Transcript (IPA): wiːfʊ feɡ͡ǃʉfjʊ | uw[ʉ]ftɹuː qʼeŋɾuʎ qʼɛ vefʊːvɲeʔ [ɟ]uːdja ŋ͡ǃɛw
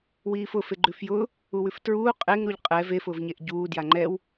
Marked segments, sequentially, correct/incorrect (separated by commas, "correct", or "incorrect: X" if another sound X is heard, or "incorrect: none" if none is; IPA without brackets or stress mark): correct, correct